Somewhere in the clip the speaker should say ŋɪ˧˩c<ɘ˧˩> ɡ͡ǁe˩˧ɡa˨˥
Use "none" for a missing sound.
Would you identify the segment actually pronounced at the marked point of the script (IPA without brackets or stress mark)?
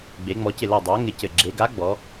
ɘ˧˩